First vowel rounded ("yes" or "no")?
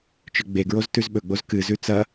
yes